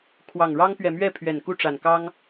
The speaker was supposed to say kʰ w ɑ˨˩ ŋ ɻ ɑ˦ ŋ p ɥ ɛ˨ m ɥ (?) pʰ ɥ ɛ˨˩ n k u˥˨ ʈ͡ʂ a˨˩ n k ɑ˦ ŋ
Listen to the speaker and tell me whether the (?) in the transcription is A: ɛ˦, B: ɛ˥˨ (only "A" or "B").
B